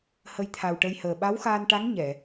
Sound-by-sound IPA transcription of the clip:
hə˧jt̪ʰa˨˩wʈə˧jhəː˨˩ ɓa˧˥wxaː˧nʈa˧˥ŋ ɲɛ˨˩˨

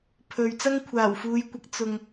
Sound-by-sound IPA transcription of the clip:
pʰɵ˨ɥ t͡sɐ˥ŋkʷʰaː˨˩wfuː˨˧jkʷɐ˨˥k̚ t͡sʊ˧ŋ

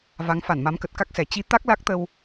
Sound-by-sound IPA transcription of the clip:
va˨˦ŋfa˧˩nma˨˦mkə˨˩t̚ ka˦˥k̚sɛ˨˩ t͡ɕi˨˦ t̪a˦˥k̚la˦˥k̚t̪ə˧w

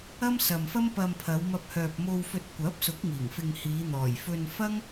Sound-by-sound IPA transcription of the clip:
ɐ˥msɐ˨m fɐ˥mpɐ˧mpʰɐ˨˧w mɐ˧p̚hœː˨p̚mo˧w fɵ˧t̚kʷɐ˨˥p̚sʊ˨˥k̚ŋiː˨˩ŋ fɪ˧ŋhiː˨˧ n̪ɔː˨˩jfɵ˧nfɐ˥ŋ

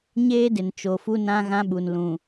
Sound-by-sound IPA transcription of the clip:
ɲeː˦dɪ˨n t͡ʃo˨fu˦nã˦ɣã˦ ɓu˨nlũ˨

